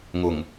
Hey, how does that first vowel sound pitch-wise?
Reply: low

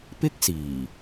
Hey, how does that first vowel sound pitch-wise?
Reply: high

